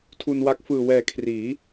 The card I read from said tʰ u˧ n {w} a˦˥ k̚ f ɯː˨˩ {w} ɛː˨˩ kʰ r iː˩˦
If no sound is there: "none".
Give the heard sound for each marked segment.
w, w

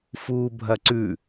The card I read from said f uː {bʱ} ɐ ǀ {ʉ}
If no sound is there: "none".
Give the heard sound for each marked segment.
bʱ, ʉ

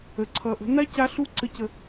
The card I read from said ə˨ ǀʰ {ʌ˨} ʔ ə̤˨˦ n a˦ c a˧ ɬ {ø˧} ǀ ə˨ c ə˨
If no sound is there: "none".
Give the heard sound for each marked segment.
ʌ˨, u˧

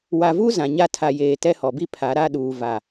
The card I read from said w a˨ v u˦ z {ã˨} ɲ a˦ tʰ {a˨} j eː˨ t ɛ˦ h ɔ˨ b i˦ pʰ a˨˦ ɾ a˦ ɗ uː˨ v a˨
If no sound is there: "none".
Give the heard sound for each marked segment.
ã˨, a˨

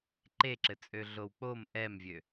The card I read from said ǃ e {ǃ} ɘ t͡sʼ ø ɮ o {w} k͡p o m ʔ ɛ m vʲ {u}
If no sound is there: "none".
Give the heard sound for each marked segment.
ǁ, w, ø

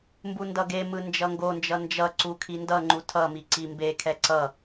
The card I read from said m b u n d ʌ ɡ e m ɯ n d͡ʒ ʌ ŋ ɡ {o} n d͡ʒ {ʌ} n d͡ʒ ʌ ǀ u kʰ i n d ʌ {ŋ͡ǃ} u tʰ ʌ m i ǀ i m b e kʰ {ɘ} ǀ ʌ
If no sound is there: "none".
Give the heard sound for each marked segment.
o, ʌ, ŋ͡ǃ, ɛ

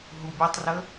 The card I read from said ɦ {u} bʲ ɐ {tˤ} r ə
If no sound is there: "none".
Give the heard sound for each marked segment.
u, tˤ

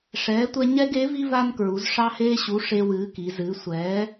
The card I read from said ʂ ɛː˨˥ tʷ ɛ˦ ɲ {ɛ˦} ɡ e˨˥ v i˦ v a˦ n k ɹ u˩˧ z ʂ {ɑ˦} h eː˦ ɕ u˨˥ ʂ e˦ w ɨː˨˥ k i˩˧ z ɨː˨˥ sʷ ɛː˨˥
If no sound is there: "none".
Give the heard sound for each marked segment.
ɛ˦, ɑ˦

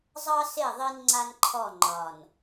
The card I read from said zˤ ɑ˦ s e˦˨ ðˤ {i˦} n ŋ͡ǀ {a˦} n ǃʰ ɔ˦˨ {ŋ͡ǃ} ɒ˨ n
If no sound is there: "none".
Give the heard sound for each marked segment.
i˦, a˦, ŋ͡ǃ

